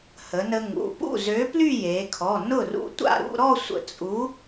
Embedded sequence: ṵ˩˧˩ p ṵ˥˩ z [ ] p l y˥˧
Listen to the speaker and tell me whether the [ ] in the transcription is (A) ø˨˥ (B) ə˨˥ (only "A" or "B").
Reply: A